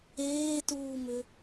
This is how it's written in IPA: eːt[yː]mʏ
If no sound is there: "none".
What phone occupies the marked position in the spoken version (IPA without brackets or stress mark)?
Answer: uː